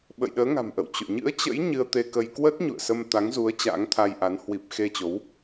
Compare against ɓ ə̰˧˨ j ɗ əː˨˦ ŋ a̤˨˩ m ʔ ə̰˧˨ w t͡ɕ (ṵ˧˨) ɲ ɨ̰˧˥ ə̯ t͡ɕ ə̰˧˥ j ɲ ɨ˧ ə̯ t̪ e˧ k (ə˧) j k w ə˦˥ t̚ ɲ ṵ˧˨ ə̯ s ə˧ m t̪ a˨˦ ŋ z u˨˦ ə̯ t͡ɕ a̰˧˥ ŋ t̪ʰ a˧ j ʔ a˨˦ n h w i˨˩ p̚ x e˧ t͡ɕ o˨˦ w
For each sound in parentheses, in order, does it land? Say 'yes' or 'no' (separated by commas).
no, yes